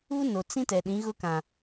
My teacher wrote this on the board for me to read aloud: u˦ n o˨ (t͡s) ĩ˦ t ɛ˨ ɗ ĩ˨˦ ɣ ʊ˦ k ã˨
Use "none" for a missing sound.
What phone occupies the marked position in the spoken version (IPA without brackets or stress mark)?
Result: t͡s